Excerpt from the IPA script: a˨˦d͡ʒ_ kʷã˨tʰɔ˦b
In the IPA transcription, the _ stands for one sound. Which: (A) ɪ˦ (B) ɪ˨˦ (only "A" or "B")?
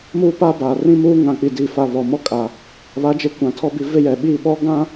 B